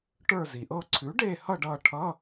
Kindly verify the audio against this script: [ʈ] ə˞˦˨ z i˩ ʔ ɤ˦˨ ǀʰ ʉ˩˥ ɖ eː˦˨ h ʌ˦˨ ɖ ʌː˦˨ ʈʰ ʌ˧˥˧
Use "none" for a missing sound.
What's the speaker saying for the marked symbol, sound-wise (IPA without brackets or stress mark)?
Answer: ʈ